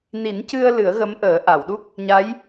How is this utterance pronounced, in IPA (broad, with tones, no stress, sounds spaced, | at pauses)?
n i˨˩˦ n c ɨ˧ ə̯ l ɨ˨˩˦ ə̯ ɣ ə˧˥ m ʔ əː˨˩˦ ʔ a˨˩˨ w ɗ u˦˥ k̚ | ɲ a˧˥ j